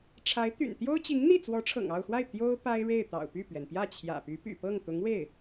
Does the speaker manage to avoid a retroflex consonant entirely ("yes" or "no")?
no